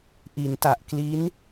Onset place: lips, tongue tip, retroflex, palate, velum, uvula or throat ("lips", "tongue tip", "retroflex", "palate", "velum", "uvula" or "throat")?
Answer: throat